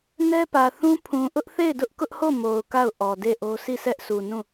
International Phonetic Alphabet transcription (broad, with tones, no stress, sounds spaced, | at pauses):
n ɛ˦ p ä˨ θ ũ˦ pʰ ũ˨ ʔ ʊ˦ ʔ θ e˦˨ ɪ̯ d ʊ˦ ʔ k ʊ˦ ʔ h o˦˨ m o˨ ʊ̯ k a˦˨ ʊ̯ ʔ ɔ˨ d e˦˨ ʔ o˦ s i˦˨ s ɛ˦ ʔ s u˨ n ũ˦˨